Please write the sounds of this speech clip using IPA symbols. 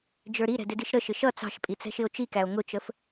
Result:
d͡ʒ ə˞ ɾ i ɾ ɛ̤ d ɪ d i ʃ ɾ ə ʃ ɪ ʃ ʌ t͡s ɑ̤ ʃ pʼ i t͡s ɛ̤ ʃ ɪ o̯ t͡ʃ i k æ o̯ ŋ ʊ t͡ʃ ə f

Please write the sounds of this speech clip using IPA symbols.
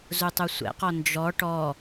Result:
z u tˤ u sʷ ɛ̰ q ɔ n d͡ʒ ɔ ʈ ɔ

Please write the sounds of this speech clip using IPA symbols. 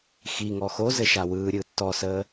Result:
x i ŋ ɔ x o z ɘ ʃ a w ɯː ɾʲ ɯː tː ɔ s əː

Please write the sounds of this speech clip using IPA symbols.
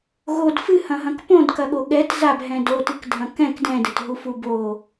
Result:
ɣ o d f ɨ h ɐ̃ ɦ ɐ̃ k p õ d k ɐ ɠ o ɠ ɛ t z a b ɦ ɛ̃ d o t ɨ k dʱ ɐ̃ k ɛ̃ k d ɛ̃ d ɘ t ɦ u f u b o

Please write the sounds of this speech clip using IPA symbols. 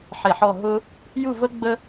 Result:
ħ e˧˩ ħ ɔ˥˧ ɦ ʊ˥ | j u˥˧ v ə˥ ɡ͡b ə˥

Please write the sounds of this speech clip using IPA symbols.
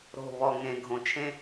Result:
ɾ o̤˦˨ β ɔ˦˨ ŋ ẽ˧ ɡʱ õ˨ t͡ʃʰ ẽ˧

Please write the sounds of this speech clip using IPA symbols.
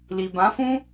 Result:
l i˨ b ã˨˦ f ũ˦

